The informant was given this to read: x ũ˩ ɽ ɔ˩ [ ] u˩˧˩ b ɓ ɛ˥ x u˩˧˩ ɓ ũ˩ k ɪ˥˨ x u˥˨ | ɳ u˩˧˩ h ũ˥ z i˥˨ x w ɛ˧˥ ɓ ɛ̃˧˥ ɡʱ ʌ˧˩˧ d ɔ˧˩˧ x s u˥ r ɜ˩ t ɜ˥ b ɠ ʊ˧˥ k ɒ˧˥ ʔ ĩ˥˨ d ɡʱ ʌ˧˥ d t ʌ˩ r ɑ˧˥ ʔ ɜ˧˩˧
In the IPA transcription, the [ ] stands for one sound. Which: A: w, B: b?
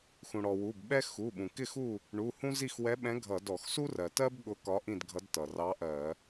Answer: A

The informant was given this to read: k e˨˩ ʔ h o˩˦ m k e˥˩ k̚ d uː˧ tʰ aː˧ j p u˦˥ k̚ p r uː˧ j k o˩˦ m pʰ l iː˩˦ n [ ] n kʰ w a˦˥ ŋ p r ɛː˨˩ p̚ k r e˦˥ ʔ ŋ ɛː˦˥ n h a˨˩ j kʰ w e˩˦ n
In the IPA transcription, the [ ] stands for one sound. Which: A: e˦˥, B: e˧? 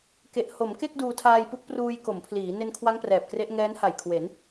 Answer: B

